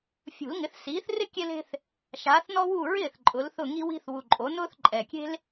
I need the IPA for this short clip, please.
fʲ ṳ˨˩˦ l ŋ ɪ˩˥ θ s iː˩˥ θ r ɪ˥ kʲ e˥ l e̤˥ θ | ʃ aː˩˥ θ n ɔ˥ w u˥˩ ɹ ɪː˥˩ θ ǃʼ ʊ˩˥ l θ ʊ˥˩ ŋ i˥ w i̤˥ θ w u˨˩ ǃʼ o˩˥ n ʊː˥ θ ǃʼ ɛ˨˩ kʲ e̤˥ l

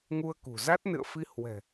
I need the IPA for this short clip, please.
ŋ u˧ ə̯ k ṳ˨˩ z a˦˥ t̚ n ɨ̰˧˨ ə̯ f i˧ h w ɛ̤˨˩

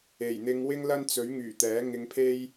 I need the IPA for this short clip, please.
e˨˩ j n̪ ɪ˧ ŋ w ɪ˥ ŋ l ɐ˥ n t͡s ɵ˨˥ ɥ ŋ yː˨˩ t̪ ɛː˨˥ ŋ ɪ˧ ŋ pʰ e˥ j

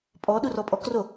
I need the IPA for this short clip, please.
pʼ ɔ ɗ u r ɔ pʼ ɔ k r o

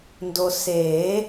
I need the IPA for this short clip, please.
n d o˨ s eː˨˩˦

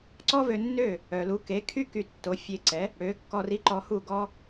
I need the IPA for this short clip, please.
ǀ ɔ˥ v ø˧ nː ø˥˩ | œ˩ l u˩˥ k e˩˥ kʰ y˥ k y˧ tː o˩˥ fʲ e˧ ǀ ɛ˩˥ | ɽ ø˩˥ kː ɔ˧ r i˥˩ ǃ ɔ˧ h u˥˩ ɡ ɔ˥

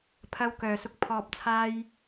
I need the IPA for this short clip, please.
pʰ ɐ˧ w k œː˨ s ʊ˧ k̚ pʰ ɔː˨ p̚ t͡sʰ aː˧ j

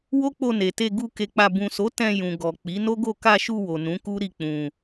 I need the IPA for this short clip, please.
w o˦ k͡p o˧ n e˨ t e˧ ɡ u˧ k e˧ k͡p a˧ b ũ˨ s o˨˦ t ɛ̃˧ j ũ˨ ɡ ɔ˨ k͡p i˨˦ n o˦ ɡ o˦˨ k a˧ ʃ u˧ w o˨ n ũ˨˦ k u˦ ɾ i˦˨ k͡p ũ˧

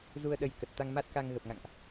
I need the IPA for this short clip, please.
z u˧ ə̯ ɗ ə˨˦ j k ə˨˩ t̚ t̪ a˧ ŋ m a˦˥ t̚ k a˧ ŋ ɣ ə˨˩ p̚ ŋ a̰˧˨ ŋ ʔ

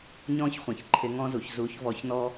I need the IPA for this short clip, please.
ɲ ɔ̃ː˥ ç χʷ ɛ̃˩˧ ç ǃʰ ɪ˧˥ ŋ ɔ̃˥ z u˩˧ ç z u˧˥ ç v ɔ˧˥ ç n ɔ˥

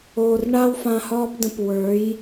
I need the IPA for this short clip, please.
oː˨ r ɳ a˦ w f ã˧ h ɒː˦ p d ə̃˧ p w ə˞˨˦ j

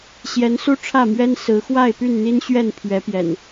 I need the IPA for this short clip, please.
ɕ j ɛ˨˦ n s u˦ ʈ͡ʂʰ ä˥˨ m ɥ ɛ˦ n s ɹ̩˨˦ x w a˥˨ ɪ̯ p y˥˨ n n̪ i˦ n ɕ ɥ ɛ˥˨ n pʰ ɥ ɛ˨˦ p j ɛ̰˨˩ n

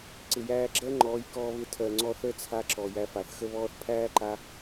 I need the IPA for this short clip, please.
ǀ ɪ˨ j æː˧ ɡ͡ǁ ɜ˦ ŋ͡ǃ ɔː˨˦ j k ɔː˧ β ɪ˧ tʰ ɜ˨ ŋ͡ǀ ɔ˧ θ ə˦˨ t͡sʰ a˧ ǁ ɔ˨ j æ˧ f a˨ θ x ə˧ β ɔː˧ θ pʰ æː˦ ǃ a˧

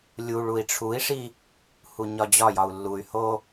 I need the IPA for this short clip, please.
lʲ u ɭ u i̯ ʈ͡ʂʰ u i̯ ʂ i | h u ɲ ɒ d͡ʑ ɒ j ɒ u̯ lː u y̯ h o

